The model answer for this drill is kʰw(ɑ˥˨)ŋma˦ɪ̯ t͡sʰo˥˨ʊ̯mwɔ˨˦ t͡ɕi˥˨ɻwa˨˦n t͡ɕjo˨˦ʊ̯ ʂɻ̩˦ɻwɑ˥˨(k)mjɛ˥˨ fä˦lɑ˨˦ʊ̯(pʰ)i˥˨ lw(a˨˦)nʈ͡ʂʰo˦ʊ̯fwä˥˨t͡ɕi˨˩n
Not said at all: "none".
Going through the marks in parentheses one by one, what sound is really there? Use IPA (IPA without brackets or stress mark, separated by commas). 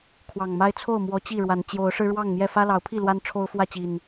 ɑ˨˩, ŋ, pʰ, a˦